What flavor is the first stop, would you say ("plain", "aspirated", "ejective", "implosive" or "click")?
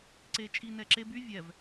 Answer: click